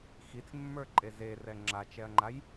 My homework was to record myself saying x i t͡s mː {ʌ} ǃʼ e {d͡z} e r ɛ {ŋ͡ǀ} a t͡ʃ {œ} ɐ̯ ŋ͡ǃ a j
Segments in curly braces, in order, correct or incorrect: incorrect: ə˞, incorrect: z, incorrect: ŋ͡ǁ, incorrect: ɛ

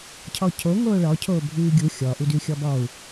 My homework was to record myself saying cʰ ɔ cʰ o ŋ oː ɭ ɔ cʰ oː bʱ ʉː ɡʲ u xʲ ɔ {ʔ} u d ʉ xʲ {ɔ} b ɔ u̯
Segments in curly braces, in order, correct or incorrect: correct, correct

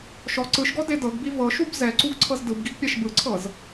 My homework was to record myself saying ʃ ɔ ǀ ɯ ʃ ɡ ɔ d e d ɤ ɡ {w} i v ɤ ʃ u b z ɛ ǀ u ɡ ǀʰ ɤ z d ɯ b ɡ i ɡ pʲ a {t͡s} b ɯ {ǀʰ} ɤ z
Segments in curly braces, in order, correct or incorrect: incorrect: b, incorrect: ʃ, correct

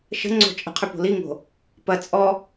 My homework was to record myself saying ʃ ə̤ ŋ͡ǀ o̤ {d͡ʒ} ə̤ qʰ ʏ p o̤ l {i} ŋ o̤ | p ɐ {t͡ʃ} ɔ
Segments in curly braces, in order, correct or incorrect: incorrect: t͡ʃʼ, correct, incorrect: t͡sʼ

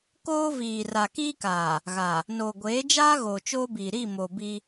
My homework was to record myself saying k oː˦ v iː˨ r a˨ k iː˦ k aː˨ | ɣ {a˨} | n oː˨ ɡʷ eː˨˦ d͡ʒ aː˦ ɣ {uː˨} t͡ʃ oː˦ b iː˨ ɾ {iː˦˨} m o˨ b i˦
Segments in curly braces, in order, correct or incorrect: correct, incorrect: oː˨, incorrect: i˦˨

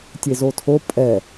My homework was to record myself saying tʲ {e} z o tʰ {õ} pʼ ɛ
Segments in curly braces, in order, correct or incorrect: correct, incorrect: o

